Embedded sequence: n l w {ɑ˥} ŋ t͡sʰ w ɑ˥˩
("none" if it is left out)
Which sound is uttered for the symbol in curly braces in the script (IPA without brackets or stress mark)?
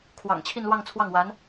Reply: ɑ˥˧